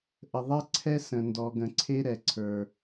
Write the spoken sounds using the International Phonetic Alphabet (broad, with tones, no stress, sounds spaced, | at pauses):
ʔ ə˨ ðˤ ɛ˦ ǀʰ ɛ˦ s ə̃˨ n d ɔ˨ ɡ ə̃˨ ǀʰ e˦ ɾ ɛ˨ ǀʰ ə˞˦